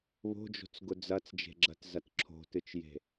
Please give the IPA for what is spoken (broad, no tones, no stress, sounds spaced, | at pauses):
β o̤ d͡ʒ o̤ t͡s ɡ ʊ d͡z ɐ t͡s d͡ʒ e̤ ɡ͡ǁ ɐ t z ɐ t ǁʰ o̤ t ɨ t͡ʃ j e̤